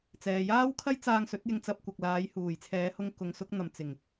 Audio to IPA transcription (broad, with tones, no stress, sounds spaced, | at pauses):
t͡s ɛː˨ j aː˥ w kʰ ɐ˥ j t͡s aː˧ ŋ s ɵ˨˥ t̚ j ɪ˧ ŋ t͡s ɐ˧ p̚ kʷ ɐ˨ k̚ l aː˨˧ j h uː˨˩ j t͡sʰ ɛː˨˧ h ʊ˧ ŋ k ʊ˨˧ ŋ s ʊ˨˥ k̚ n̪ ɐ˨ m t͡s ɪ˨˩ ŋ